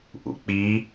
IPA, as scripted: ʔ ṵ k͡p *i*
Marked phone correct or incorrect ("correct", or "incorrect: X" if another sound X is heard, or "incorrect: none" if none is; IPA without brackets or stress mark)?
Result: correct